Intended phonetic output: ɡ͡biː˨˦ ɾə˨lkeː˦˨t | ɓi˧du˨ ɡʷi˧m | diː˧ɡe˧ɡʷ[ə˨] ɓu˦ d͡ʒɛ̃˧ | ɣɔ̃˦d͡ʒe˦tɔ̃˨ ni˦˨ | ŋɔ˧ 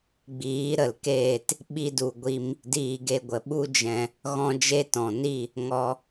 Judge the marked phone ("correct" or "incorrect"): correct